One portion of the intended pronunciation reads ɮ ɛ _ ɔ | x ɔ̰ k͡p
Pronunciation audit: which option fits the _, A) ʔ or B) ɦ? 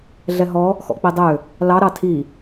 B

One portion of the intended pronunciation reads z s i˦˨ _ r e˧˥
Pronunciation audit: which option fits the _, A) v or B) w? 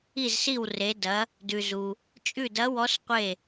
B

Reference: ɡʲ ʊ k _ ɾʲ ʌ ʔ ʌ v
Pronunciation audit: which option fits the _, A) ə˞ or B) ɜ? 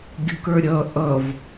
A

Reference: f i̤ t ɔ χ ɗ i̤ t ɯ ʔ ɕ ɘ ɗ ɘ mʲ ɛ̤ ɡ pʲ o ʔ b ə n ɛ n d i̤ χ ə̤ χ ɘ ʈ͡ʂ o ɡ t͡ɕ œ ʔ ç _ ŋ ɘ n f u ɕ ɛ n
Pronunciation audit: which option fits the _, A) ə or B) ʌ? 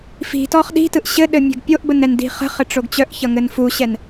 B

